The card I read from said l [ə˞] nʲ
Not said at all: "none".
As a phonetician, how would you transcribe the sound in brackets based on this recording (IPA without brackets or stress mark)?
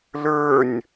ə˞